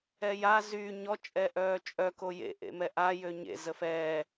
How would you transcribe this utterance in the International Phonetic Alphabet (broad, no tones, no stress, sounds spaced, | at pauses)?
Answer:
ɛ j a z y ɲ ɔ t͡ʃʼ ɛ ʔ œː t͡ʃʼ œ k o j ḛ ʔ ḛ m ɛ ʔ a j ø ɲ ḛ z ə f ɛː